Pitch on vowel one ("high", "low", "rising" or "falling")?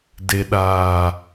low